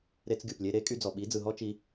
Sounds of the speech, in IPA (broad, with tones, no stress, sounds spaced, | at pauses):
ɾ e˧ t͡s ɡʲ u˨ p lʲ e˧ ɾ e˧ kʼ y˧ d͡z ɔ˨ ɓ i˨˦ d͡z ɯ˨ ɦ ɔ˦ t͡ʃ i˧